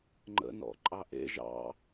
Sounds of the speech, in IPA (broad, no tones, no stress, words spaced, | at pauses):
ŋ͡ǃə̰nɔ̰ ǃʼɑʔḛ ʒɑ̰